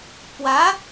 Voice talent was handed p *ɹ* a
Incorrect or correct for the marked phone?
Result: incorrect: w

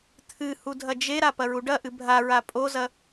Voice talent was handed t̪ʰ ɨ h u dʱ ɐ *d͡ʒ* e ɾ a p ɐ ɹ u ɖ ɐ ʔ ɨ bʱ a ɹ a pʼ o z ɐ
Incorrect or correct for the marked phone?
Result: correct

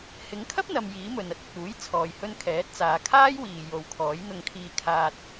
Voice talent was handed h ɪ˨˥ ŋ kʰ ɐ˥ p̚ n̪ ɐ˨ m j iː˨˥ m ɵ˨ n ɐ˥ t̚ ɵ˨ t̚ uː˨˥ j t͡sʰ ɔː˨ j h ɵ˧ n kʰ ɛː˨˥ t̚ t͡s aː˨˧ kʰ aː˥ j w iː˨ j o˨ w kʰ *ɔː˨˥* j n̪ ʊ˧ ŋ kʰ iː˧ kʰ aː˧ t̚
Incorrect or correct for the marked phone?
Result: correct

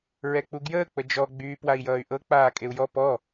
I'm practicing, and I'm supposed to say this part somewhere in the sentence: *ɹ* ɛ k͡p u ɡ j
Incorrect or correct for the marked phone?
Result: correct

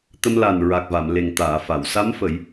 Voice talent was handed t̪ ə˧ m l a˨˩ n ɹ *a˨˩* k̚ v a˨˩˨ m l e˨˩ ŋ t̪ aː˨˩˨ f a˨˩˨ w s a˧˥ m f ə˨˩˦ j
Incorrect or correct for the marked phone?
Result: correct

